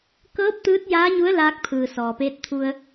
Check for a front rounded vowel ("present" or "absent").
absent